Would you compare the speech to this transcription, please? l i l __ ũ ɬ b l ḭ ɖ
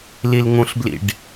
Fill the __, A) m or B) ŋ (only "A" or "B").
B